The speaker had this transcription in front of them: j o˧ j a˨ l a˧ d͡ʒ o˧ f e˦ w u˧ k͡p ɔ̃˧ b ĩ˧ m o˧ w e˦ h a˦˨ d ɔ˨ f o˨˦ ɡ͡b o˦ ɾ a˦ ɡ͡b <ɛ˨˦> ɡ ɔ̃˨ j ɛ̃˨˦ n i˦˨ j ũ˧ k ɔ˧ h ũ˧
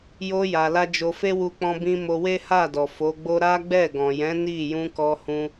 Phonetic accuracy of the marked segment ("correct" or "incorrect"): incorrect